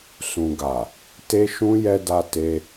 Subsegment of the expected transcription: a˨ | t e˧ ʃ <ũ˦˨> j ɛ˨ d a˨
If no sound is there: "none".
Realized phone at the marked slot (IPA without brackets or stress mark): ũ˧